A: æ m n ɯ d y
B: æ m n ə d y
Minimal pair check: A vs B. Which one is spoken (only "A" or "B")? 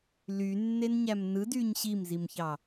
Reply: A